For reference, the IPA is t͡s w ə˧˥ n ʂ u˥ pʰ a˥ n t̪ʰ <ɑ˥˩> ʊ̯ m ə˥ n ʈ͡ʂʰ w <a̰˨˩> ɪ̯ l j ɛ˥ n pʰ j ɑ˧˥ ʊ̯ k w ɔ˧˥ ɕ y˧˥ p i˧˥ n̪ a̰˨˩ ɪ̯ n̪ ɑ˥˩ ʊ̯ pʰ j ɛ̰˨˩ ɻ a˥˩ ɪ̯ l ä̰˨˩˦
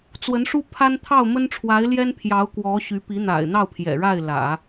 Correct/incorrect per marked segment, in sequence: correct, incorrect: a˧˥

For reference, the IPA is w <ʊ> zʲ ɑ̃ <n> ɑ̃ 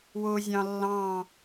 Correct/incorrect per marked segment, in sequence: correct, incorrect: lː

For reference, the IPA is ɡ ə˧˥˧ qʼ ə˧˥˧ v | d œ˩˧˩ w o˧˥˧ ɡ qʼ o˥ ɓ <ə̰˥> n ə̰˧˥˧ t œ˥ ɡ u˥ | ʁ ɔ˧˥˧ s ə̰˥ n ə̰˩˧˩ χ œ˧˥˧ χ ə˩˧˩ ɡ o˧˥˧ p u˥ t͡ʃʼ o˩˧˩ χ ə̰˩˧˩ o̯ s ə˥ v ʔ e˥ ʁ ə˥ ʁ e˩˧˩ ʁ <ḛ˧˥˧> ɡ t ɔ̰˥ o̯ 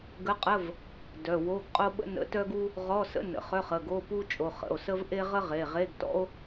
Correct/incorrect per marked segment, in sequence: correct, incorrect: e˧˥˧

